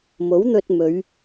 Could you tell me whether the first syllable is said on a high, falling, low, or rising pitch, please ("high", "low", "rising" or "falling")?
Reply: rising